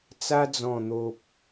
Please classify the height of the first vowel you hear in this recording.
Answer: low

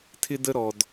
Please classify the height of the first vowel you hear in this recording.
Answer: high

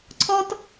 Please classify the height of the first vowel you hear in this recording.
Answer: mid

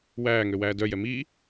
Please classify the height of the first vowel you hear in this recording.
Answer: low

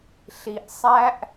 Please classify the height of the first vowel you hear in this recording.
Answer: high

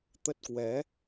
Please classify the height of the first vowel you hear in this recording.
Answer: mid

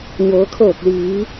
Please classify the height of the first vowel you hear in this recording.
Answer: mid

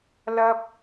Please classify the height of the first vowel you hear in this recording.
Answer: low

